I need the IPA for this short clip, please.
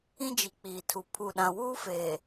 ĩ˦ d͡ʒ i˨ k͡p iː˨ tʰ u˨ pʰ u˨ ɗ ã˨ w uː˦ f eː˨

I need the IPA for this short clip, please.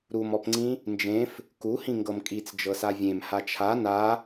ɾ u m ɔ p ŋ͡ǀ ĩ | n d͡ʒ ẽ f | k u h ĩ ŋ ɡ ɤ m kʼ i t͡s d͡ʒ ɤ s a vʲ ẽ m h a t͡ʃʰ a n a

